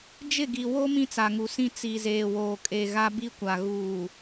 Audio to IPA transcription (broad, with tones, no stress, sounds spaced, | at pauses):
d͡ʒ ɪ˦˨ ɡ i˨ w o˦ m ĩ˦ t͡s a˨ ŋ u˨ s ĩ˦ t͡s i˨ z eː˨ w oː˨ kʼ e˨ ɣ a˦ b i˦ kʷ a˨ ɣ uː˨